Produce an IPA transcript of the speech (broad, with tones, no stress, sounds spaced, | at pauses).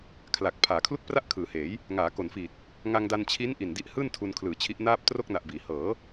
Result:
kʰ l a˨˩ k̚ pʰ aː˩˦ kʰ l u˥˩ k̚ p r a˥˩ ʔ kʰ ɯː˩˦ h eː˩˦ j | ŋ aː˩˦ k o˩˦ n f iː˨˩ t̚ | ŋ a˧ ŋ d a˧ n t͡ɕʰ i˦˥ n ʔ i˨˩ n d i˦˥ ʔ h ɯː˥˩ n tʰ u˧ n kʰ l ɯː˨˩ t͡ɕʰ i˦˥ ʔ n aː˥˩ p̚ t r o˥˩ k̚ n a˨˩ ʔ b iː˩˦ h ɤː˩˦